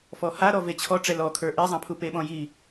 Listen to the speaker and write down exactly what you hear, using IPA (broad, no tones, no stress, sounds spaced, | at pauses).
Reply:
f ɔ h a ɾ ɔ v e t͡ɕʰ ɔ ʈ͡ʂ ɛ l ɔ kʰ ə˞ ʔ e zˤ ã pʰ u p e ɓ ɔ̃ j i